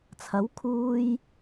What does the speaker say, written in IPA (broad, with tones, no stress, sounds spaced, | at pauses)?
t͡sʰ ɐ˨˥ w kʰ uː˧ j